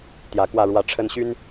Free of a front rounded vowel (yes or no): no